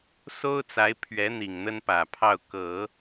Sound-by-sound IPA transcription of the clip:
s o˥ ʊ̯ t͡s a˧˥ ɪ̯ pʰ ɥ ɛ˧˥ n̪ i˨˩ ŋ n̪ ə˥ n p ä˨˩ pʰ ɑ˥˩ ʊ̯ k ɤ˨˩˦

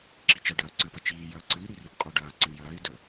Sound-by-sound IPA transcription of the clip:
ǁ i t͡ʃ ɐ ɖ ɐː ǀ ɨ p ɐ t͡ʃ iː j ɐː ǀ ɨ i̯ ɾ i r i p qʼ o ɖ ɐː ǀ ə ɳ j ɐː i̯ d ə

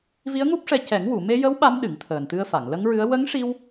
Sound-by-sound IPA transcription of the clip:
v i˧˥ ə̯ ŋ u˦˥ p̚ ʂ ɛ˧ c ɛ˨˩˦ ŋ w u˨˩˨ m e˧ j ə˧˥ w ɓ a˧˥ m ɗ ɨ˨˩˦ ŋ t̪ʰ əː˨˩ n t̪ ɨ˧ ə̯ f a˨˩˨ ŋ l ə˧˥ ŋ ɹ ɨ˧˥ ə̯ w ə˧˥ ŋ ʂ i˧ w

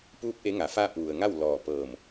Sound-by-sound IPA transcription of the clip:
p uː˧˥ p̚ ʔ e˧˥ ŋ a˩˧ f aː˥˨ p̚ ʋ u˩ ə̯ ŋ a˥˨ w l ɔː˧˩ p ɤː˧˩ m

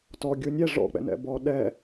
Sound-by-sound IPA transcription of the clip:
t ɔ ɡʲ u nʲ ɛ ʐ ɔ̰ k͡p ɛ̰ n ɛ̰ b ɔ ɗ ɛ

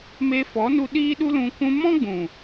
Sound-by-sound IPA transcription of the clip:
m e˧ f ɔ˨˦ n u˧ ɗ iː˦ ɗ u˦ l ũ˧ kʷ ũ˧ m ɔ̃˦ ɡ͡b ũ˨

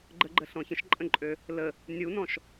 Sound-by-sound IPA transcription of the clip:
ɡ͡ǃ ə ɡ͡ǃ ə ɬ ɔ̃ ç ə̃ ʃ ǃʼ ə̃ ǃʼ ø | l ə | nʲ u n ɔ̃ ʃ

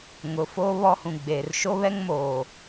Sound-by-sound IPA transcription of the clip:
ŋ ʊ˨ f oː˦ β ɔ˦ h ũ˨ ɡ͡b eː˨ r ʃ o˦ β ɛ˦ ŋ m oː˨

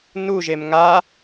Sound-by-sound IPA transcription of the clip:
n u ʒ e m ŋ a

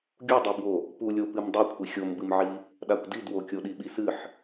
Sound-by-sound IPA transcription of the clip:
ɡʲ u dˤ u b w o | p u lʲ o p ɨ m dˤ ʉ kʷʰ i xʲ o m b ɨ m ʕ i | ɗ a kʷ d i d w o kʲ o ɗ i ɓ i s ɨ ħ

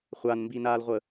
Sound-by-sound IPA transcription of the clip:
χʷ a n m b i n aː l ʁʷ ə

